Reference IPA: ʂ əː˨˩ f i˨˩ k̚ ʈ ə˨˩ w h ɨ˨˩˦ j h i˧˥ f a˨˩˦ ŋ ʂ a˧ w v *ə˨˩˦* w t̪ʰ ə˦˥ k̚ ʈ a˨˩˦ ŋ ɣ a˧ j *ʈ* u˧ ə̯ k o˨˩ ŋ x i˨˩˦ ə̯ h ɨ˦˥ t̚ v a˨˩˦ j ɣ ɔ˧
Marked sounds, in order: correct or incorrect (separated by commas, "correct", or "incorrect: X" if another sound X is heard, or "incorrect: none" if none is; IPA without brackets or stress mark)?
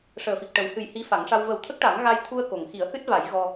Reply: correct, incorrect: t̪ʰ